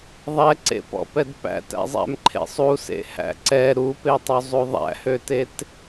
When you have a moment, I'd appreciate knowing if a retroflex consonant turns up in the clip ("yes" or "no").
no